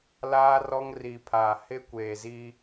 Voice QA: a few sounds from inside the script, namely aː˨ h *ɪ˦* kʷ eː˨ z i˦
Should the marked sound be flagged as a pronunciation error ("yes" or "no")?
no